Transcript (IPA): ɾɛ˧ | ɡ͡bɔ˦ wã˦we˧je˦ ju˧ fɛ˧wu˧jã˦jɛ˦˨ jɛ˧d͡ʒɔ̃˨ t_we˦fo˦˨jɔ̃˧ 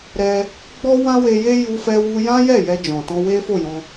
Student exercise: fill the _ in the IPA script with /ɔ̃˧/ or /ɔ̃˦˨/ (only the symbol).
ɔ̃˧